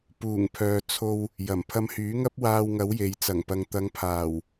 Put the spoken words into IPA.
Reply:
p uː˨˩ ŋ pʰ œː˨ t͡sʰ o˧ w | j ɐ˨˩ m pʰ ɐ˧ m h yː˨˥ ŋ ɐ˥ p̚ w aː˧ w ŋ ɐ˨˥ w j e˨ j t͡s ɐ˨˩ ŋ p ɐ˨ ŋ t̪ ɐ˨˧ ŋ pʰ aː˨˩ w

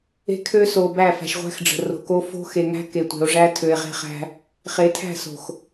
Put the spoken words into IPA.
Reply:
e̤˦ kʰ ø˦ s o˨ b æ˦˨ f æ̤˨ ʃ ʁʷ æ̤˦ x ɖ͡ʐ ə̤˨ r o̤˨ k o˦ f o̤˦ x e˨ ŋ æ̤˦ k e˨ tʷ e̤˨ o̯ ʐ æ˦ tʰ ø˨ e̯ ʁ e̤˦ χ æ̤˦ | χ e˨˦ tʰ æ̤˦˨ s o̤˨ x

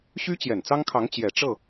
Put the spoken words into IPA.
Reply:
ɕ y˥ t͡ɕ j ɛ˨˩ n t͡s ɑ˥ ŋ kʰ ɑ˧˥ ŋ t͡ɕ j ɛ˨˩ ʈ͡ʂ ɤ˥˩

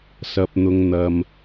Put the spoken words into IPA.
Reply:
s ɐ˨ p̚ n̪ ʊ˨ ŋ n̪ ɐ˧ m

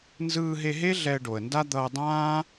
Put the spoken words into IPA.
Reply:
n z ɯː˧ ɦ e˧ ɦ e˥ ɮ ɛ˧ ə̯ ɖ o˩ ə̯ n d a˥ d̪ ʌː˧ dˤ ãː˥

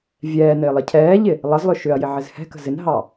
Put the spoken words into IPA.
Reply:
vʲ ɛː n ɪː lˠ ɪ cʰ ɛː ʎ ɪ | lˠ ʌ z lˠ ʏ ʃ ʏ ɐ̯ j ɪ ʕ ɪ z h ɛ̤ k ə̤ z ɪ n ɦ ɑ

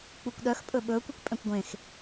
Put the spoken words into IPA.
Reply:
k͡p u kʷ ɗ œ x pʼ ɵ ɓ ɵː kʷ y kʷ pʼ ɛ̃ kʷ ɡʷ ẽ x

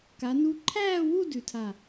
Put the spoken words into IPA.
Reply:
k a˩˧ n u˨˥ ǃʰ æː˥˧ w u˥˧ d ʉ˩˧ tʰ a˧˩

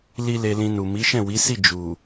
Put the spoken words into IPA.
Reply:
l i˦ l e˧ l ĩ˧ n u˨ m i˨˦ ʃ ɛ̃˦˨ w i˨˦ s i˦˨ d͡ʒ u˨

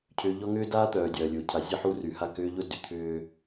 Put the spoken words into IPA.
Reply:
cʰ ʏː˨ ʎ ɔ˦ ŋ ʏː˦ d aː˦ t̪ œː˨ dʲ ɐː˨ lʲ ʊː˨ cʰ a˨˦ zʲ ɐ˦ ħ u˦ r y˨ h a˦˨ k ʏː˦ ʎ ʊ˦ d y˨ t̪ʰ ʏː˦

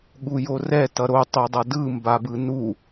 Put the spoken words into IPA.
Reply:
ɠ u j o r ɛ t ʌ ɾ o tˤ u dˤ ʌ d ɯ m b a b ɯ n u

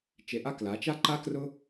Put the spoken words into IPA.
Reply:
t͡ʃ e˧ ʔ a˦ k l a˨˦ t͡ʃ a˦ ǃ a˦ k r ʊ˦

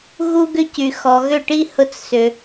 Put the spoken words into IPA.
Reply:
ɣ u˦ ɡ ʏ˦ c y˨ x ɔ˨ ɣ ʏ˦˨ ʈ i˦ h ʊ˧ t͡s s ʏ˨

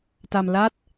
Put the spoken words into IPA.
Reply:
t a˧ m l a˥˩ t̚

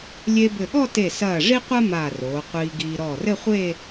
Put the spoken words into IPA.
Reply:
lʲ e˧ b ɘ˧˩ ɠ ɔ˥˧ t e˧˩ s ɐː˧˩ ʐ i˥ qʷ a˥ m aː˧˩ r oː˩˧ qʷ iː˧ ɡ iː˧ ɾ ɔː˧˩ r ɘ˥˧ χʷ e˥˧

